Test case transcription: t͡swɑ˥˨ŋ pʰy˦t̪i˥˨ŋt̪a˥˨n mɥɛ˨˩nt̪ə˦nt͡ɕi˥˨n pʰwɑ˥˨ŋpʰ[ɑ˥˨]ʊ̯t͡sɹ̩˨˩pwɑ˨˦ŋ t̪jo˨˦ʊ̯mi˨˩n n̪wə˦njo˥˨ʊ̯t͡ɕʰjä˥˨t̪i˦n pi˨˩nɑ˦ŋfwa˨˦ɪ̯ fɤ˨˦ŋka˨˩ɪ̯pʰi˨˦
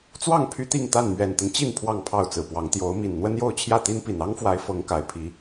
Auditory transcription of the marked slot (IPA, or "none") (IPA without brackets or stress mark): ɑ˥˨